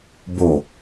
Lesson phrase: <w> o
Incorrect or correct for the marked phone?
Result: incorrect: b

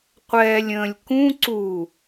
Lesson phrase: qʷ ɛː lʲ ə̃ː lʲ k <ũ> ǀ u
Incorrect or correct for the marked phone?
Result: correct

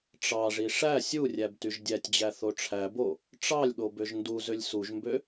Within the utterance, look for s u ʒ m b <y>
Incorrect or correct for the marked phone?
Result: incorrect: ø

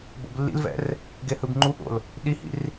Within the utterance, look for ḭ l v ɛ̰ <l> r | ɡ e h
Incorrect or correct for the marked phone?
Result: incorrect: none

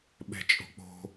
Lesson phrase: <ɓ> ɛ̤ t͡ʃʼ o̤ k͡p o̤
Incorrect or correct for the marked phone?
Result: correct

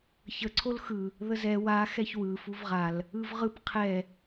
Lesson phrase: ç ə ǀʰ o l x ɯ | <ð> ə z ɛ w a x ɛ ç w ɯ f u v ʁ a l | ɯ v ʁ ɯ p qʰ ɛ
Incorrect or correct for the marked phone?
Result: correct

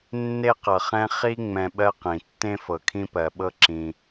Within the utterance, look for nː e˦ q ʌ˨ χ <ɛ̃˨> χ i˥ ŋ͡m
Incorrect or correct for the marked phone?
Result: incorrect: ɛ̃˦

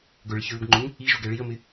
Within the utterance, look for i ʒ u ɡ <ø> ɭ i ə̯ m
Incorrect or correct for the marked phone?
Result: incorrect: ɛ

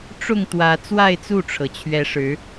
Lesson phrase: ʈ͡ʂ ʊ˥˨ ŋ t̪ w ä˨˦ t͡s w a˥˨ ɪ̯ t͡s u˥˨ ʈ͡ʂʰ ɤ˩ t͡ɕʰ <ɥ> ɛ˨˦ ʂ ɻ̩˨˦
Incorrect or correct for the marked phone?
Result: correct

